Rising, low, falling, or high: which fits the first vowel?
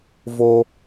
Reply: high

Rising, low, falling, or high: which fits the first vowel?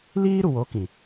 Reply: high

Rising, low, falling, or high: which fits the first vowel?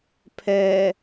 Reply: low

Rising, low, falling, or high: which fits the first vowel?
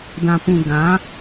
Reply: low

